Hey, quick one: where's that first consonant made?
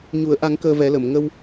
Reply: palate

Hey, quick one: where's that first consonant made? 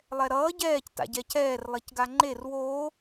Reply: tongue tip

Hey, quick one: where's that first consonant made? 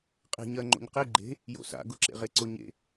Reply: uvula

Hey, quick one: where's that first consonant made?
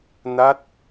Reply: tongue tip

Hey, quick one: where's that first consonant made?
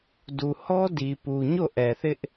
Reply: tongue tip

